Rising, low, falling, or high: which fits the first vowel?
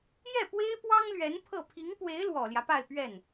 falling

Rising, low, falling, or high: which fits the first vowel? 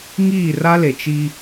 falling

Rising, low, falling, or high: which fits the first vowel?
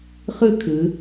high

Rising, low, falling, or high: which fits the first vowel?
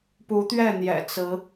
rising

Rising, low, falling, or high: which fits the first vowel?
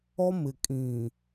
high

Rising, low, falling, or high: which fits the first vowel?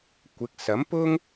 rising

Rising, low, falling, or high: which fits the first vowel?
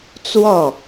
falling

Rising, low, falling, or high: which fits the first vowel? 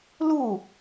falling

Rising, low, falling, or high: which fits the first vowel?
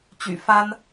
low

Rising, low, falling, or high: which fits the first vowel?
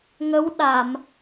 rising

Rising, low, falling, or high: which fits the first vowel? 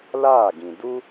falling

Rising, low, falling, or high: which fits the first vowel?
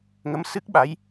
rising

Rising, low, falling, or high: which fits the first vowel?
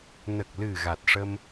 low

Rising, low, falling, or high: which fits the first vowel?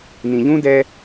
low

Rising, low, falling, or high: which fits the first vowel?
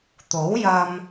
rising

